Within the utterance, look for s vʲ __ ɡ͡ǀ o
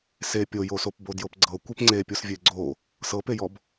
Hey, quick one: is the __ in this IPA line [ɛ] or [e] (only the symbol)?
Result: e